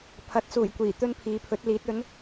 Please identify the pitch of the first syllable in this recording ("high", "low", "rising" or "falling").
rising